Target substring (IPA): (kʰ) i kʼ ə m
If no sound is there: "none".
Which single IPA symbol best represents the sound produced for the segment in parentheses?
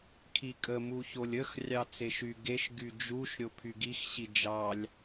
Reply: kʰ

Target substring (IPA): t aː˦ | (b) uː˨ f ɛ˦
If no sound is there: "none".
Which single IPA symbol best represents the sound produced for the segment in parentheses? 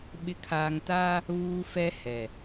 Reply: β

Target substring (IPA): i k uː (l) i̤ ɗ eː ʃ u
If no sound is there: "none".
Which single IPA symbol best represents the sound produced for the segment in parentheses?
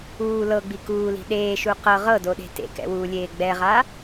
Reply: l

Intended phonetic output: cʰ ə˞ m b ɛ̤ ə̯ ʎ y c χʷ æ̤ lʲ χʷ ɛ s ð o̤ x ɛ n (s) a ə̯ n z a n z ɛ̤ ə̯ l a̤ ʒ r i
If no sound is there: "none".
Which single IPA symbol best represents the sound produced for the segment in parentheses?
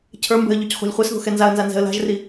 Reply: z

